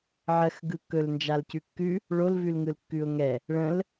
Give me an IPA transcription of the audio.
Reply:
ʕ ɜ x ɡ ɯ kː ɵ l n d͡ʒ a l c ʉ kː ʉ | ɭ o l v ʉ l ŋ ɯ l kː ʉ ʊ̯ ŋ ɛ | ɭ ə̃ l

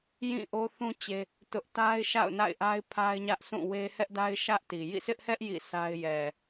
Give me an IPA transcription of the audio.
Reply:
j ĩ˦˨ ʔ o˦ θ ũ˦ t͡ɕ e˦ | t ʊ˦ ʔ t a˦ ɪ̯ ʃ a̰˦˨ ʊ̯ n a̰˦˨ ɪ̯ ʔ a˦ ɪ̯ pʰ a˦ ɪ̯ ɲ ä˦ ʔ sʰ ũ˦˨ w e˦ h ɛ˦ ʔ d a˦ ɪ̯ ʃ ä˦ ʔ t i˨ j ḭ˦˨ sʰ ɪ˦ ʔ h ɛ˦ ʔ j ḭ˦˨ sʰ a˦ ɪ̯ j ɛ˨

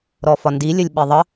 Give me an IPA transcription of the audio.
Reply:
ɾ ɔ f ɒ n d i lʲ ə lʲ ɓ i ðˤ ə

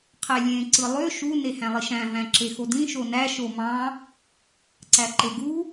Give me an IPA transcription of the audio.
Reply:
qʰ æ lʲ ẽ ǀ ɯ lˠ ø ʃ u n e h æ̃ lˠ i ʃ æ̃ v æ̃ ǁ e x o d ĩ ʃ o n æ ʃ o m ɑ̃ | ǀ æ ǃ e ɡ u

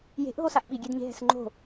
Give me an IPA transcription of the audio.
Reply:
j e̤ ʔ ɦ o s a ʔ ɓ i ɡʲ e d ɲ e̤ ɦ ɛ̤ s ŋ͡ǃ o̤

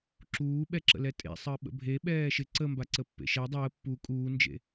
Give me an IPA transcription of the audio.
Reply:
ǁ uː ɓ ɛ ǁ ə̰ l ɛ tʼ ḛ sˤ əː ɓ ə̰ bʱ e ɓ ɛː ʃ ɪ ǀ ə m b a ǀ ə pː ḛ ʃ ɛ dˤ əː pː u kʼ uː n d͡ʒ ḛ

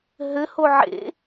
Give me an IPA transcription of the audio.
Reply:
ɦ ɘ h o ʕ ḛ

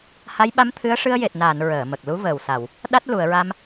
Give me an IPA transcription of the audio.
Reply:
h a˧˥ j ɓ a˧˥ m t̪ʰ ɨ˧˥ ə̯ ʂ ɨ˧ ə̯ j e˨˩ t̚ n aː˨˩˨ n ɹ əː˨˩˨ m ə˨˩ k̚ l u˧˥ v əː˨˩ w s a˨˩˨ w | ɗ a˦˥ t̚ l u˨˩˨ ə̯ ɹ a˧ m

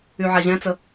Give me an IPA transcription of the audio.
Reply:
y ʕ a ʑ ɛ̃ t͡s ə

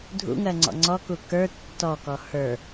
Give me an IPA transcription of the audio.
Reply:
dʱ ṵ ŋ ɜ ŋ͡ǀ ɔ̰ ŋ͡ǀ ɔ k u k ə˞ tː ɔ k ɔ h ə˞

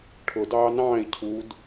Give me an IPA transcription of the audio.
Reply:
ʈʰ ʊ d ɑː n ɑ̃ː i̯ cʰ u d

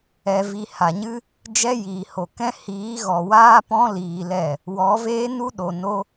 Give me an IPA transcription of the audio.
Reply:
ɛ˧ v i˧ h a˨ ɲ ɨ˦ | d͡ʒ ɛ˦ j iː˨ h o˨ k ɛ̃˦ h iː˨˦ ɣ ɔ˨ w aː˦ p ɔ̃˦ l iː˧ l ɛ˦˨ | w ɔ˨˦ v eː˦ n u˦ ɗ o˨ n o˦

